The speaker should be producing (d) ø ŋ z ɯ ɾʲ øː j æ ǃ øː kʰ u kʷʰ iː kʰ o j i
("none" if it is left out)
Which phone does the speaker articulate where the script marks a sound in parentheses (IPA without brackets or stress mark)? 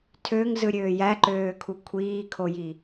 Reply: tʰ